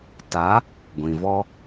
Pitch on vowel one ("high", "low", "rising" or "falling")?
rising